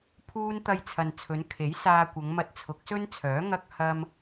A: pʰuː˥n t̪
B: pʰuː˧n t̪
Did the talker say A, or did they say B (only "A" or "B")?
B